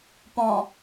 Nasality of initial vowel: nasal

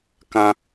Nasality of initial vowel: nasal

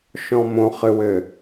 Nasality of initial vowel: nasal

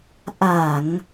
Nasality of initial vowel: oral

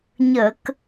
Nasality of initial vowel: oral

